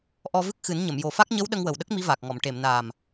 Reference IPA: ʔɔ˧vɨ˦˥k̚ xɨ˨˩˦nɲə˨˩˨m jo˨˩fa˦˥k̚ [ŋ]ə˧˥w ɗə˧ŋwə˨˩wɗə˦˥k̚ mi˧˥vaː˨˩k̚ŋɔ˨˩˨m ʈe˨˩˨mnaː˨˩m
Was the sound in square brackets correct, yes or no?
no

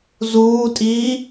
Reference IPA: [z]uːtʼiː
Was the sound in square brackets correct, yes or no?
yes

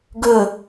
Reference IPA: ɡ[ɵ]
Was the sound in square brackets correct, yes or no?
yes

